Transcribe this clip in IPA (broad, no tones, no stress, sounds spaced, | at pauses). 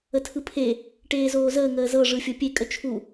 ə tʰ ɯ pʰ e | ʈ eː z oː z əː ŋ əː z ɤ ʐ ɯ fʲ ɤ pʲ e kʼ ə t͡ʃʰ u